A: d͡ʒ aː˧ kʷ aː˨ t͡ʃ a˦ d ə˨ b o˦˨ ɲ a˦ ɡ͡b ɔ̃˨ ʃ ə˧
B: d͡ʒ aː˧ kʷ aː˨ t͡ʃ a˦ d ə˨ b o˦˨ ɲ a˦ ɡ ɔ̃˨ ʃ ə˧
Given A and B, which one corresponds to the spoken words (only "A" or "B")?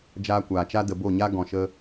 B